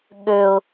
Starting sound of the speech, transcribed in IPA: ɠ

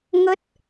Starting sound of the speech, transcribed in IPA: ŋ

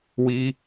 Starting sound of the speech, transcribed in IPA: w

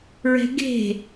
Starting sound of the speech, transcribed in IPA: ɹ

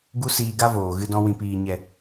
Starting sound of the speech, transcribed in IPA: ɡ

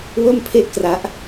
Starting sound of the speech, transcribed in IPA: w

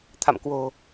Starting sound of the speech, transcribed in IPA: t̪ʰ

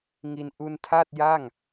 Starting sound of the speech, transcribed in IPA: ŋ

